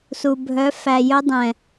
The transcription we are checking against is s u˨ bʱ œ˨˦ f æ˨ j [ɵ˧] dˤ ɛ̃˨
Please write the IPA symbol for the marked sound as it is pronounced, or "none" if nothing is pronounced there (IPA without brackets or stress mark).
ɵ˧